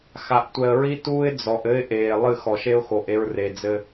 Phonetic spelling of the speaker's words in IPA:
x a˨ ʔ tʷ ɛ˨ ə̯ ɹ i˦ t uː˦ ɪ̯ d͡z ɔ˨ ʔ ɘ˦ ɪ̯ ʔ eː˨ lˠ ɨ˦˨ x ɔ˨ ʃ e˦ ʊ̯ x o˨ ʔ e˦ ɹ r e˨ d͡z ɘ˦

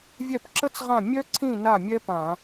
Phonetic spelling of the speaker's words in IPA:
vʲ ɛ˥˩ p ǁ ə˥ t͡s ʁ ã˥˩ mʲ œ˥ ǀʰ ĩ˥˩ n a˥˩ mʲ ɛ˥ p ã˧˩˧

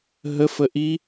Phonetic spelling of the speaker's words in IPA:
ɦ ə f ə ʔ i

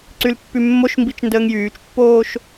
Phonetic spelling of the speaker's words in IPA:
ǀ y l pː y mː o ʃ m b i t͡ʃ n d əː ŋ j yː t͡ʃ pː oː ʃ

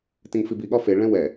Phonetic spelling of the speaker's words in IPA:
t ẽ ŋ f i b i ɠ ɒ f e ɭ ɛ̃ w ɛ

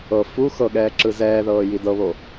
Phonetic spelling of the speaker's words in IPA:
ɤ f u x ɤ ɠ ɛː ǁ ɯ z ɛː ð ɤː j i d ɤ β o

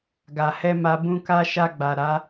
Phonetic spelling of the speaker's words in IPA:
ɡ a˨ h ɛ˧ m a˧ b ũ˦ k a˦ ʃ a˧ ɡ͡b a˨ ɾ a˨˦

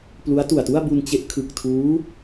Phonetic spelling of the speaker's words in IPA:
p l u˦˥ a̯ t u˨˩ a̯ t u˥˩ a̯ b u˧ n t͡ɕ e˦˥ ʔ kʰ ɯ˨˩ k̚ tʰ uː˦˥

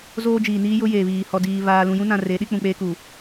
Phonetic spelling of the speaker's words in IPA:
z oː˦ d͡ʒ iː˨ n iː˦ j ʊ˦ j eː˨ β iː˨ h ɔ˨ d iː˨ β aː˨ l ũ˨ j ũ˦ n ã˨ r e˨˦ ɗ i˦ k͡p ũ˨ k͡p eː˦ k u˨

